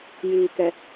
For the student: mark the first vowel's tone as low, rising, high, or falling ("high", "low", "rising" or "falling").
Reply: low